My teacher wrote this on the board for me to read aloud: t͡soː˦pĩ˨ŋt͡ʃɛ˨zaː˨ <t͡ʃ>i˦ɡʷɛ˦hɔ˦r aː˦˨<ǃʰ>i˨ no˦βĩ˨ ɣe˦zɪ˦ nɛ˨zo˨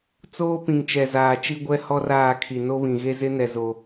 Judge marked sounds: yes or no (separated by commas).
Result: yes, no